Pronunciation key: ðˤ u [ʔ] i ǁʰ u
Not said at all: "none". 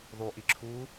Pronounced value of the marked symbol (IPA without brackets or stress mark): ʔ